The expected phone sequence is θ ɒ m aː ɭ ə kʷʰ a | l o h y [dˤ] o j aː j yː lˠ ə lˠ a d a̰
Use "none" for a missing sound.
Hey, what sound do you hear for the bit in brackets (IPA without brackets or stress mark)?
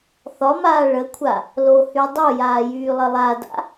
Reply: dˤ